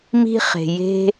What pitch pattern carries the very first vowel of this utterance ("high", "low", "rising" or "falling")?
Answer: high